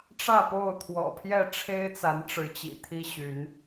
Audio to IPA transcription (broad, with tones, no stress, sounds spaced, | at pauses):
ʈ͡ʂ ä˥˨ p o˥˨ ʊ̯ t̪ʰ w ɔ̰˨˩ pʰ j ɛ˥˨ ʈ͡ʂʰ e˦ ɪ̯ t͡s a˨˦ n ʈ͡ʂ ɻ̩˨˦ t͡ɕ ḭ˨˩ t̪ʰ i˦ ɕ y˨˦ n